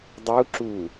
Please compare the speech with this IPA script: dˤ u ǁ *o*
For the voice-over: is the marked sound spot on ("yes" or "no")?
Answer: no